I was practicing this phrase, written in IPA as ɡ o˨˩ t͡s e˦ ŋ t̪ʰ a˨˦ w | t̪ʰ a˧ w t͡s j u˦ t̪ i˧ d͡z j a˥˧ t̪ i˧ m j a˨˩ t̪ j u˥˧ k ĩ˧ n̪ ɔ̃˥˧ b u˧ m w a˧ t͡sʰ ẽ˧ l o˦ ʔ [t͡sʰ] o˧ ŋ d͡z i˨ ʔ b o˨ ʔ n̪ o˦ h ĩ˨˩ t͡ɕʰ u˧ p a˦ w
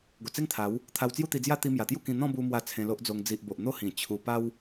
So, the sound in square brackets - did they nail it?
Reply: no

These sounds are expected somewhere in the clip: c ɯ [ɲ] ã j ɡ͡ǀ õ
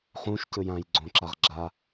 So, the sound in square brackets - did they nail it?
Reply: no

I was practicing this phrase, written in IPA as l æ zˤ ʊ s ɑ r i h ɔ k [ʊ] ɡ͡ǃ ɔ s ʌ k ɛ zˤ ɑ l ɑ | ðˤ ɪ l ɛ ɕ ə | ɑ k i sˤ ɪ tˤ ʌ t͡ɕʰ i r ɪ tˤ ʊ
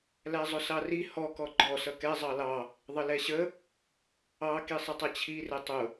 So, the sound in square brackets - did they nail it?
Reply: no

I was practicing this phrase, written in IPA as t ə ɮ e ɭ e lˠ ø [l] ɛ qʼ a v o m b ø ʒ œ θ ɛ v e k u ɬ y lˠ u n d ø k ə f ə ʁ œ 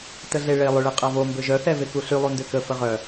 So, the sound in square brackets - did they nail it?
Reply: no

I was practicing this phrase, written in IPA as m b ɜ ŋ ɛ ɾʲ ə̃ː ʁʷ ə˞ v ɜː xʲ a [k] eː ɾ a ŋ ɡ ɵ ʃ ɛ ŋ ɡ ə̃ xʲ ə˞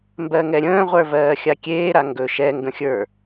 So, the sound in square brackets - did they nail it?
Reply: no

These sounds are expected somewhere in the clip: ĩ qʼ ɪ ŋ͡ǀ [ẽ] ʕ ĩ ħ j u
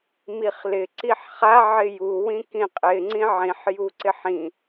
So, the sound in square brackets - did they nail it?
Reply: no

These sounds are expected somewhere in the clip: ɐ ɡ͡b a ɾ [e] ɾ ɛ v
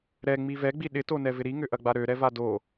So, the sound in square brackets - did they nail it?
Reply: no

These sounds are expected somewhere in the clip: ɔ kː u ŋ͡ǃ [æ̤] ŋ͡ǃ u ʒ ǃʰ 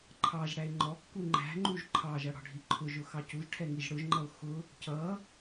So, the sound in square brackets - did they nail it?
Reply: yes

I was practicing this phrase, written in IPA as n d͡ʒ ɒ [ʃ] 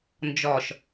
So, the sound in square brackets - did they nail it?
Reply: yes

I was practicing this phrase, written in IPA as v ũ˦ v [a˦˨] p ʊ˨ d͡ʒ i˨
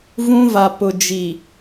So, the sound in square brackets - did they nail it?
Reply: no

